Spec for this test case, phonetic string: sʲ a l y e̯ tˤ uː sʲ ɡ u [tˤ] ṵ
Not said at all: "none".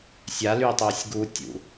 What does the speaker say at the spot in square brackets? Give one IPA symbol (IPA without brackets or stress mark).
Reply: tʲ